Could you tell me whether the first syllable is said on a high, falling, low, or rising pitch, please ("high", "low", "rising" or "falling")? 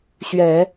low